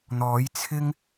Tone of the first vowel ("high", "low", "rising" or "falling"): rising